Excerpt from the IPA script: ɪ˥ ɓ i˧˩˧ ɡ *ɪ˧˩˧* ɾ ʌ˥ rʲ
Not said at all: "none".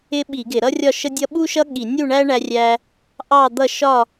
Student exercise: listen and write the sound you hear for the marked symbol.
ɪ˧˩˧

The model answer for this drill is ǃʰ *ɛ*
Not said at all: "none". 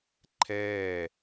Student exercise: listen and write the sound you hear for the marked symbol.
ɛː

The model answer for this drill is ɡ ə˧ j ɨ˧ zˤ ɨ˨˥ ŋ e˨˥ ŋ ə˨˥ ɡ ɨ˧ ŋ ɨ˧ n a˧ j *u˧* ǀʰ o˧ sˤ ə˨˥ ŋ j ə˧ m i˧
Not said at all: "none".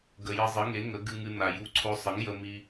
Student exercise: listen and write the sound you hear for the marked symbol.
u˧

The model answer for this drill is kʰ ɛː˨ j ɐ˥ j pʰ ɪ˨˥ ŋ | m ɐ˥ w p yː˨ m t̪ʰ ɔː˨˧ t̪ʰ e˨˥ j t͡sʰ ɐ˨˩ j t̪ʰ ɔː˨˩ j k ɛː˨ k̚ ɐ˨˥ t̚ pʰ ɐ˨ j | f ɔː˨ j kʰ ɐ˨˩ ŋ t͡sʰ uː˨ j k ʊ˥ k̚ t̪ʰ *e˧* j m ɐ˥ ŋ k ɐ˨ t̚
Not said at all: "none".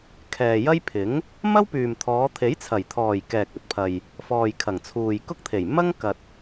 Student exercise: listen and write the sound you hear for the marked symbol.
e˨˩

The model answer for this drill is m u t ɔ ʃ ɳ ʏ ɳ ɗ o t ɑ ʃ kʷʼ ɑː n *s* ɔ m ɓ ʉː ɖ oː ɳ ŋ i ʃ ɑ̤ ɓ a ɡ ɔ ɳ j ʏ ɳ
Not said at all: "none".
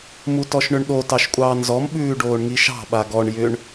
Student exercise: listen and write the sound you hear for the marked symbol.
z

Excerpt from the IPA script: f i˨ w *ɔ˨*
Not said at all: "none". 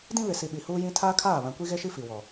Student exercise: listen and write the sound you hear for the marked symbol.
ɔ˨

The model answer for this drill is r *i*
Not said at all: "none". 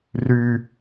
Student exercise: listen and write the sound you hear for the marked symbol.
y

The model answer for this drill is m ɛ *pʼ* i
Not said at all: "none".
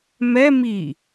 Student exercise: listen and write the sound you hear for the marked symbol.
m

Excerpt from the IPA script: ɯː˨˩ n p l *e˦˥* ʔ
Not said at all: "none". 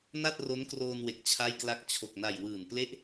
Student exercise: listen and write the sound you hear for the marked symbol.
e˦˥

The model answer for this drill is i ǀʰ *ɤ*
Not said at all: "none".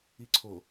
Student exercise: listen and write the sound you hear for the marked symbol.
o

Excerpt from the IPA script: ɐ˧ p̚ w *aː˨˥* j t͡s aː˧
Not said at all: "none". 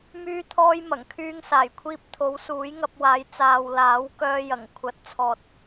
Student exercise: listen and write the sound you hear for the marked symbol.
aː˨˥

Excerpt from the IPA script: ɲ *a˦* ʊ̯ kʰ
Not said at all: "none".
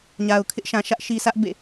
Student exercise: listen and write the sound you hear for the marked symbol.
a˨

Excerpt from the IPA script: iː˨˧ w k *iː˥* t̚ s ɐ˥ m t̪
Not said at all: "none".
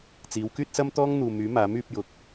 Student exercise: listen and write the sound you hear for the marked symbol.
yː˥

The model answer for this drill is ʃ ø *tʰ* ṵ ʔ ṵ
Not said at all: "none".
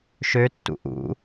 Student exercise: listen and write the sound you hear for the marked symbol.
tː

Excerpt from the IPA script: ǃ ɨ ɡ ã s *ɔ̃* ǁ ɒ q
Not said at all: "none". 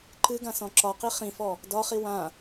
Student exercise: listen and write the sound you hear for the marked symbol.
ɔ̃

